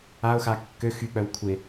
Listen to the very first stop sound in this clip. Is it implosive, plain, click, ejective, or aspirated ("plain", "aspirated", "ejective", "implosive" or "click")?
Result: plain